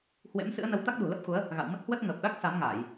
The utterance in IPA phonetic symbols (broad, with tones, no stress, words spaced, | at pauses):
hwḛ˧˥m sɨ̰˧˥ə̯nə˨˦w t̪a˦˥k̚ɗṳ˨˩lə˦˥p̚xu˨˦ə̯ | ɣa̰˧˨w mə˦˥t̚hwə˦˥t̚ ŋəː˨˩p̚ɗa˦˥k̚ sa˨˦mŋaː˧˩˨j